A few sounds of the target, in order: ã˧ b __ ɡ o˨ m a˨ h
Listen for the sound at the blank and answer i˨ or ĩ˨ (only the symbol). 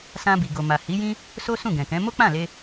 i˨